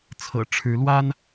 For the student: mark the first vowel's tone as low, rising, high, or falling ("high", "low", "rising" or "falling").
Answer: low